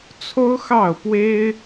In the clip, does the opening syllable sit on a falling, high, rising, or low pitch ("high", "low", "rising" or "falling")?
high